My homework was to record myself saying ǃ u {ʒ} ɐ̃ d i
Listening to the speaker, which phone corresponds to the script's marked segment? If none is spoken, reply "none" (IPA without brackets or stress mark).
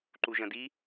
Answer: ʒ